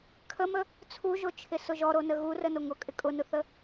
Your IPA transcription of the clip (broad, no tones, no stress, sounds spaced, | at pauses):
kʰ ə m ə | t͡sʰ u ʒ o t͡ʃʰ ɪ s ʊ ʒ ɔ ɾ o n ə ɣ u r ə n o ŋ ʊ kʼ ɪ kʼ ʊ n ʊ θ ə